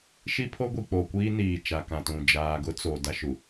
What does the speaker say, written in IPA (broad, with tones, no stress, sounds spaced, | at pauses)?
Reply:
ʃ i˦ pʰ o˦ ɡʷ i˨ k͡p o˨ kʷ iː˦ n iː˨ t͡ʃ a˨ k ã˨ t ũ˨ d͡ʒ aː˨ ɡ ʊ˦ t͡s o˨ d a˦ ʃ u˨